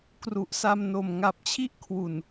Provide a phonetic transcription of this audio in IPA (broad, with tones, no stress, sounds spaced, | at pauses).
k r u˨˩ ʔ s a˧ m n o˨˩ m ŋ a˨˩ p̚ t͡ɕʰ i˥˩ ʔ kʰ w u˨˩ n